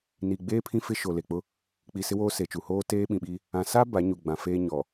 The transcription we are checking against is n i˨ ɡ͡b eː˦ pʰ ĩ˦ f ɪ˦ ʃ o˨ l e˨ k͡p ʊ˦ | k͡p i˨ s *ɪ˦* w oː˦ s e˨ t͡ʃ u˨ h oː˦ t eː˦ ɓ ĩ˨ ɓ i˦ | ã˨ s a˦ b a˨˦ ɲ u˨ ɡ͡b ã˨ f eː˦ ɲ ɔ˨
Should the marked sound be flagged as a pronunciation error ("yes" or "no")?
no